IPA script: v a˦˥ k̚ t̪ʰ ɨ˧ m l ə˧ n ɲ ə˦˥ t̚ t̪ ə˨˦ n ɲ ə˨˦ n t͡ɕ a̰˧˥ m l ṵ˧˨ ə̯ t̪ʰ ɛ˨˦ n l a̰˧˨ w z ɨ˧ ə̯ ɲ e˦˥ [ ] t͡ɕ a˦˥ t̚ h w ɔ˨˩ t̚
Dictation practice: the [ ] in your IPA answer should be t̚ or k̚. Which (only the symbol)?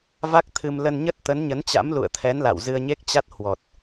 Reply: k̚